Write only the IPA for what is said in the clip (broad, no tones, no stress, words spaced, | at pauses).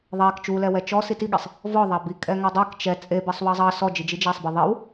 ðˤɛk t͡ʃulɛ wɛt͡ʃɔ sitiɠesˤ | vɔ ðˤabi kʼɛŋɔdˤɛk t͡ʃɛ t͡sʼebɛsˤ wɑzˤɑ sɔd͡ʒid͡ʒi d͡ʒasˤbe ðˤiw